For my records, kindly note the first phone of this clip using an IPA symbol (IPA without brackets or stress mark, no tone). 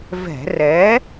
v